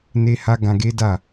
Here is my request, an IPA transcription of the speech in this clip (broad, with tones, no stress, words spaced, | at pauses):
ne˦ ha˦ ɡã˧ɡe˦da˦˨